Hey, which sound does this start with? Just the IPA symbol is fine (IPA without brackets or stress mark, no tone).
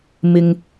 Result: m